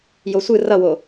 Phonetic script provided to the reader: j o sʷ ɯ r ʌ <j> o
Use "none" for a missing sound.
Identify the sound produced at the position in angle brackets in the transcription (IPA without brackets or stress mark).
w